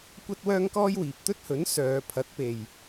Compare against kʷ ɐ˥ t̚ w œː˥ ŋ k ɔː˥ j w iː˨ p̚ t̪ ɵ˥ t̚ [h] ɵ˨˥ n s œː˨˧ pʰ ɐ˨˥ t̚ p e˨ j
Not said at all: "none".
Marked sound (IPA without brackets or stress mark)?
h